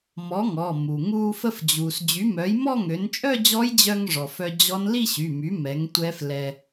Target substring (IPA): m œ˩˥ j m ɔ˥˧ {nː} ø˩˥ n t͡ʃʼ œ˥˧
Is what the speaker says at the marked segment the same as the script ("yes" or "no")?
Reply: no